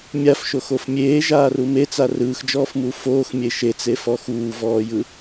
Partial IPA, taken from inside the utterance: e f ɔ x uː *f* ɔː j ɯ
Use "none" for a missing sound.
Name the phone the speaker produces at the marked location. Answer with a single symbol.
v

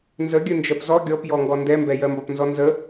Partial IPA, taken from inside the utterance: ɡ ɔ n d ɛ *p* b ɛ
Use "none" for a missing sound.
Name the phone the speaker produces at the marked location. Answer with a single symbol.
m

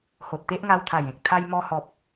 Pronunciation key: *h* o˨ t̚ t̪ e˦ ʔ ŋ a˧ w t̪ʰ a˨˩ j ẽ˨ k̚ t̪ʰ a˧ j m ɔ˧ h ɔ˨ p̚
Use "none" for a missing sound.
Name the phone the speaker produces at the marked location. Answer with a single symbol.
h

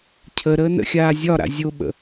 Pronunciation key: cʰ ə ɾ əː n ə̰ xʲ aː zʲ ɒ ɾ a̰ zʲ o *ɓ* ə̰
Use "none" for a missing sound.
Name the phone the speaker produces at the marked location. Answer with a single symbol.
ɓ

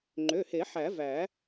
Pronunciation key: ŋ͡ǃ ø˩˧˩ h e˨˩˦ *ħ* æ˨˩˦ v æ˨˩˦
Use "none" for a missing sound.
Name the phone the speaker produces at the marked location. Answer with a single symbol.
ħ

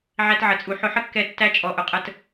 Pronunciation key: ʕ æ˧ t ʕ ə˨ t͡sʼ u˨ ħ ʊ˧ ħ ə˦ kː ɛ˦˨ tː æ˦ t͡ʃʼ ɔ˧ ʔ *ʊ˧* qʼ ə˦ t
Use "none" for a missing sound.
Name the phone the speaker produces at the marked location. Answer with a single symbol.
ʊ˧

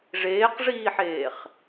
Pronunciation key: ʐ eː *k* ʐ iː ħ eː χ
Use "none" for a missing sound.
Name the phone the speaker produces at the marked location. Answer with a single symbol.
q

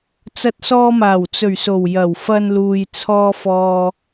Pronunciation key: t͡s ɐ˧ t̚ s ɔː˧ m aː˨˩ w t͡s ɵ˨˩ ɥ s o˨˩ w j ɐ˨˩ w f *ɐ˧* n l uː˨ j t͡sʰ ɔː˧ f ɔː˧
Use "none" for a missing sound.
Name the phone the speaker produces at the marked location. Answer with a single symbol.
ɐ˧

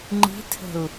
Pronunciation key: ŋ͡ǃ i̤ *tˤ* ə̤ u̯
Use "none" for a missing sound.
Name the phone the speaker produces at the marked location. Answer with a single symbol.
tʰ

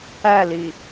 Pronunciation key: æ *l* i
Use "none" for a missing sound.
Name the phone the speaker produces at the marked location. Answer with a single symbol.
l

